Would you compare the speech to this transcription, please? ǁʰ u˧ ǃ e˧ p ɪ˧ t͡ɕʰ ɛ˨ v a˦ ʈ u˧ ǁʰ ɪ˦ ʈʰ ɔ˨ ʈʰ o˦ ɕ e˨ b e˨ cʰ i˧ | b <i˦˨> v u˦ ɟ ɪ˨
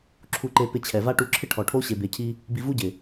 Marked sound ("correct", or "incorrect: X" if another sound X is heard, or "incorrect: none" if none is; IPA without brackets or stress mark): incorrect: i˧